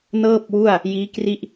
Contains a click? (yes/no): no